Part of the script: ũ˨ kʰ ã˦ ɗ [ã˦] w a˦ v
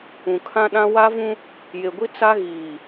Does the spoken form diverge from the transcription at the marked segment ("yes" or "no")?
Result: no